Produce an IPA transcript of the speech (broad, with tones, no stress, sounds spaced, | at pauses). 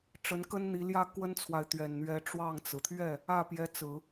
ʈ͡ʂ ə˧˥ n k ə˥ n n̪ i˧˥ l j ä˥ k w ə˥ n t͡sʰ w a˨ ɪ̯ t̪ ɥ ɛ˨˩ n n̪ ɥ ɛ˧˥ ʈ͡ʂ w ɑ˥˩ ŋ t͡s ɹ̩˩ t̪ʰ ɥ ɛ˥˩ | ä˥˩ p j ɛ˧˥ t͡s ɹ̩˨˩˦